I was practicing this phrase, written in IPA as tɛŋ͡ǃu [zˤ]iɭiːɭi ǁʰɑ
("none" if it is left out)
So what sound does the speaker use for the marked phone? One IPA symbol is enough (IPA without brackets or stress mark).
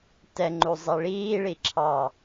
zˤ